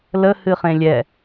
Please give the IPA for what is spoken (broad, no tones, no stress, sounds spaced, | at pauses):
l ə h ɨ χ ẽ lʲ ɛ